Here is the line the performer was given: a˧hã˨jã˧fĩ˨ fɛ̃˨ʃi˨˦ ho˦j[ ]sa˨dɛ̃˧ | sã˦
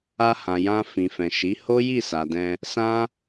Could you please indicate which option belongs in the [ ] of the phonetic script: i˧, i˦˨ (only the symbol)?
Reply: i˦˨